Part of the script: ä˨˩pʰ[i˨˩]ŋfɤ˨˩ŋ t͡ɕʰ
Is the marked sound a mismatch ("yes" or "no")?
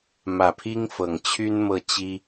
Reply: yes